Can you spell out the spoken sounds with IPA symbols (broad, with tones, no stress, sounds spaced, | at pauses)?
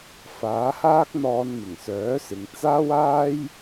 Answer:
f aː˨˥ h aː˥ k̚ n̪ ɔː˧ n m ɪ˨˩ ŋ s œː˨˥ s ɪ˨ ŋ t͡s aː˥ w aː˥ j